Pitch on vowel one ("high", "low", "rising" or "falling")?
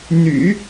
low